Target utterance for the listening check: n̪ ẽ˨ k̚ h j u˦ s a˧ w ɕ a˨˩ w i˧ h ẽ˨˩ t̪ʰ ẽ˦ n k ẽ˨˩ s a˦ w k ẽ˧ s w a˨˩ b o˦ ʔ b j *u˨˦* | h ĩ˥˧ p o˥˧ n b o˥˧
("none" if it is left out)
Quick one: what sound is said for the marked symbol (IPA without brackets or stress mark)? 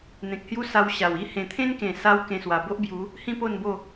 u˨˦